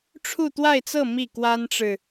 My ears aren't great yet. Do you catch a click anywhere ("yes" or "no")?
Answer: no